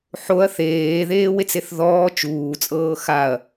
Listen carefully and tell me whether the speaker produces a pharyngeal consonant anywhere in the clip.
yes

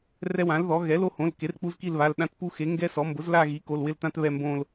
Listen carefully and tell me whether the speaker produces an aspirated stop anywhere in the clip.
no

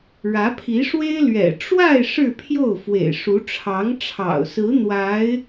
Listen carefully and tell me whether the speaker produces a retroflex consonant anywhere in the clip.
yes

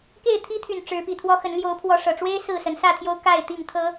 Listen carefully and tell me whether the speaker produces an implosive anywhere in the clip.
no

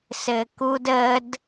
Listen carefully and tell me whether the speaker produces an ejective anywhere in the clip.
no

